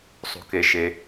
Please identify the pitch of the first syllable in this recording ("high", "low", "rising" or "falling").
low